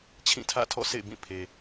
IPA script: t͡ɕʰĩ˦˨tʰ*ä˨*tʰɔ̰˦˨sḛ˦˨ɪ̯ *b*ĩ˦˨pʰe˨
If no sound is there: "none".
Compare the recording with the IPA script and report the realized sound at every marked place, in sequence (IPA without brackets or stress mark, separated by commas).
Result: ä̰˦˨, b